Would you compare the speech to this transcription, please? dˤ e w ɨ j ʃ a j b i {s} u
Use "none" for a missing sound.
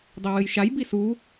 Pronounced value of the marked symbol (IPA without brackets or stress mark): s